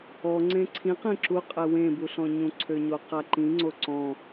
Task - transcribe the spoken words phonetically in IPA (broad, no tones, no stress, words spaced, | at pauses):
ɔ ŋ͡ǀẽǀʰĩq ĩǁuqʼɛ wẽbuɬɔ̃ɲũ ǀʰøɲoqaǃĩ ŋ͡ǀoǀɔ̃